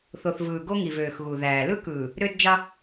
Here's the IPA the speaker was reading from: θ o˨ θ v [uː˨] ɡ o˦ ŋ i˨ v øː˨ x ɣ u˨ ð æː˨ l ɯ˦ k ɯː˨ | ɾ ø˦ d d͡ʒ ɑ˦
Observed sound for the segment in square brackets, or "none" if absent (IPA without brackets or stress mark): ɯː˨